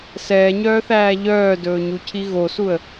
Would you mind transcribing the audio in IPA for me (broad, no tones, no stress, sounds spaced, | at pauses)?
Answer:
s ɛː ɲ œː θ æː ʎ œː d ɵː ɲ u cʰ i ɣ o s u ə̯